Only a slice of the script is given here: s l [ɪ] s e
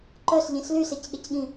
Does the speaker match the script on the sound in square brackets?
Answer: no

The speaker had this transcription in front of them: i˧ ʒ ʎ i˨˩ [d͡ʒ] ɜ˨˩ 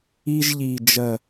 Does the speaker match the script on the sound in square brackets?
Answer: yes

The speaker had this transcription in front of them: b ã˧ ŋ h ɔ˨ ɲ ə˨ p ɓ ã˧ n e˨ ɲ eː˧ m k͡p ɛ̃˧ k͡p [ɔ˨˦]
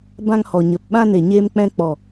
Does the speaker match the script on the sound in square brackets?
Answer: no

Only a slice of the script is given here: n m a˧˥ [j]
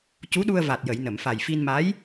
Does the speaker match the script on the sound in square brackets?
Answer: yes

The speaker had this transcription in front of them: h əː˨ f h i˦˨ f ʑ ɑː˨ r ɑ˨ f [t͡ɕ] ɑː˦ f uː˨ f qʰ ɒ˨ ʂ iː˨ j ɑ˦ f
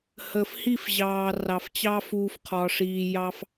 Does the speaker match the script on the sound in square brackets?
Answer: yes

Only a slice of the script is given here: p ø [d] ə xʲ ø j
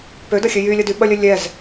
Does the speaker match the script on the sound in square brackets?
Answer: yes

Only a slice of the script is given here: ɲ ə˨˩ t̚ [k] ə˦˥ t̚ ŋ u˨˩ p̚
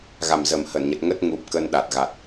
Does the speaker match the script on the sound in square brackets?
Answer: no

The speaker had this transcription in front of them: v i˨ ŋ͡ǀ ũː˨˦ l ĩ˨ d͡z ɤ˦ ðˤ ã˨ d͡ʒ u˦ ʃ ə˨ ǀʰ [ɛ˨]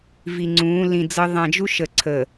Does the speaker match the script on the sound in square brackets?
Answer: no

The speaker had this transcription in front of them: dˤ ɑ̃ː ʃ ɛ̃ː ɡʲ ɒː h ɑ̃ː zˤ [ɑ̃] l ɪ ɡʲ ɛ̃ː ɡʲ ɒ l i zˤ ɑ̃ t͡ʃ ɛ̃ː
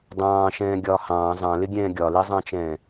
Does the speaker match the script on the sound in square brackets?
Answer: yes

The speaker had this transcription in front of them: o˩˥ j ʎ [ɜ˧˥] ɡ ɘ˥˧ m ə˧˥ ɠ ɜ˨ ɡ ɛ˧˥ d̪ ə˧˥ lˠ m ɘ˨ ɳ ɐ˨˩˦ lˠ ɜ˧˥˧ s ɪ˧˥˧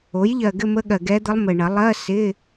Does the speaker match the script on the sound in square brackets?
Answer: no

